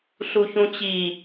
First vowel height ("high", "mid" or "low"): high